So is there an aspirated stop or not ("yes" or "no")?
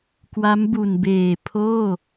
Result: yes